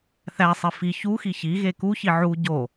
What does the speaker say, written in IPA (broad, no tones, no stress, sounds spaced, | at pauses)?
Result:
θ æ sˤ i f i ç u x i ç i ɣ e k u ç i ʕ u ɟ o